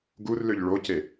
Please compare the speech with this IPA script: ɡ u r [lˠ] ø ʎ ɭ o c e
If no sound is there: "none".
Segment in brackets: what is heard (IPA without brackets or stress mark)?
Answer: l